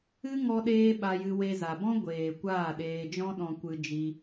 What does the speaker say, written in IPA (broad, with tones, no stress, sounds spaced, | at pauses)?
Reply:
ɨ˦ ŋ ɔ˦ ɗ eː˦ ɓ a˧ j ɨ˧ w e˧ z a˨ b ɔ̃˦ ɡʷ eː˨ kʷ aː˦˨ ɗ eː˧ d͡ʒ ɔ̃˦ ɗ ɔ̃˧ kʷ ɨ˧ d͡ʒ i˧